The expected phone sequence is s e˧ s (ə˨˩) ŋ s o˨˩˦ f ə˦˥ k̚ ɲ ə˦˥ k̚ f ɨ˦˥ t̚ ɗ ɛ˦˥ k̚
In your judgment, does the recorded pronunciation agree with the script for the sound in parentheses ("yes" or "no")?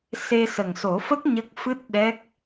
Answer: yes